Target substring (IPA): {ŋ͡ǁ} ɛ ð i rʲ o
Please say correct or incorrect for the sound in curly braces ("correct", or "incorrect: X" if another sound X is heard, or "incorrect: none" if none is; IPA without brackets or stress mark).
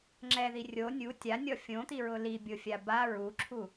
correct